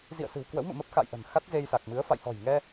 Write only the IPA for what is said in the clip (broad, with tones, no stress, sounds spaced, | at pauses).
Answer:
z ḭ˧˨ ə̯ s ɨ̤˨˩ w k w ə̰˧˥ w m ɨ̰˧˨ m ə˦˥ p̚ x a̰˧˨ j ʔ ə̤˨˩ n x a˦˥ t̚ z e˧ j s a˨˩ k̚ m ɨ˨˦ ə̯ f a̰˧˨ j h ɔ̤˨˩ j ŋ ɛ˧